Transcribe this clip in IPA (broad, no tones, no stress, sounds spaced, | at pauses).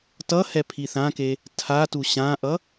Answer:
t ʌ h ɛ pʰ i θ ã k e | tʰ a t u ɕ ã ʔ ʌ